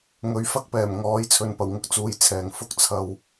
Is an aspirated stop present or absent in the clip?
present